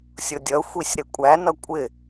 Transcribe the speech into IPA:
sʲ ʊ dʲ ʌ xʷ i sʲ ɾ ɪ kʷʼ æ n ʌ kʷʼ ɪ

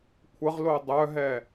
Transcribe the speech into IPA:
kʷʰ ə ʁ l o dˤ œ ɦ ɛ

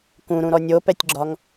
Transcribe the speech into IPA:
k ũ ɾ ũ ɾ ɔ nʲ o p ɛ tʲ ɡ͡ǁ ɒ ŋ

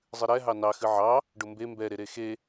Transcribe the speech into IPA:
zˤ ɨ ɾ ɛ ɦ ɑ n ɑ x ɨ ʕ ɑ | ɖ ʊ m b e m b ɛ ɾ e ɾ e x e

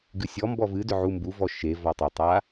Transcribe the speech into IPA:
ɡ ɨ sʲ ɔ m b ɔ v ɨ d ʏ ʕ u m b u v ɔ ʃ e v ɔ tˤ ə tˤ a

